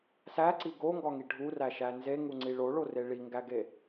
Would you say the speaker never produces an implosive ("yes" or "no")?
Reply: yes